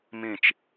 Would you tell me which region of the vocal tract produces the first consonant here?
lips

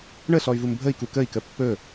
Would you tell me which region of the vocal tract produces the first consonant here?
retroflex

